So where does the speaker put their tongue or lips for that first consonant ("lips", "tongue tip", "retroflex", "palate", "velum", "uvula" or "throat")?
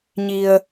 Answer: palate